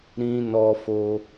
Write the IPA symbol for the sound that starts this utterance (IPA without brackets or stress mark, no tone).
ɾ